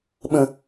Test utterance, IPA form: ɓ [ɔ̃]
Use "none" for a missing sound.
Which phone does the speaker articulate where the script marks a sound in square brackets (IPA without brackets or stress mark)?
ə̃